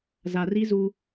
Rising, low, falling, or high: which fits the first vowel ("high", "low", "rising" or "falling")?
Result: low